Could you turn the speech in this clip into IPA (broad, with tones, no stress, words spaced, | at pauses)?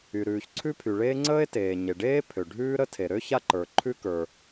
y˩ɾʉː˩ç ǀʰʉ˥pʰy˩ɭeː˥ ŋ͡ǀəː˥e̯teː˩ɲe˩ɖeː˥ pʰø˩ ɖʱʉː˥ɾə˥ tʰe˩ɾø˥ ça˥ǃə˞˩ ǃʰʉ˥kə˞˩